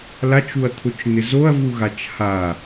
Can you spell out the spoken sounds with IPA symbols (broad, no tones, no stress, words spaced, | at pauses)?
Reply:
lat͡ʃuɐ̯t̪ʰʊt͡ʃn̪ɪ zoɐ̯vuɣat͡ʃ ha